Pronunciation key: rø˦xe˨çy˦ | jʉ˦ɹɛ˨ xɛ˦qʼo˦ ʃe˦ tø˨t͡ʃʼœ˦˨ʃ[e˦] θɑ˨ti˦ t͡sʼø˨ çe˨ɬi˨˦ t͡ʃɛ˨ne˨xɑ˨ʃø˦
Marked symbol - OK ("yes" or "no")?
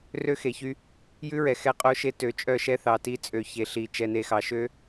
no